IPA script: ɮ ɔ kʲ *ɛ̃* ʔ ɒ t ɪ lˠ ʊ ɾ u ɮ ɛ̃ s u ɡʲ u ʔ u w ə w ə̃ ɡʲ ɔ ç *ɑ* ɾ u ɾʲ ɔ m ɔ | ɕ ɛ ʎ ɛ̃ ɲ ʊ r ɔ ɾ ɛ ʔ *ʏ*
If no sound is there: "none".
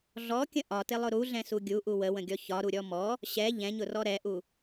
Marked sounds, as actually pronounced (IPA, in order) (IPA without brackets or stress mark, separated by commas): ə̃, ɒ, u